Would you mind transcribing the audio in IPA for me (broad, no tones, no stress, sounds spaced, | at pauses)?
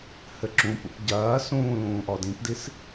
h ɘ ǁ ũ p ṵ p ɟ ɐː s ũː l ũː ʔ ɔ d ĩ p d i s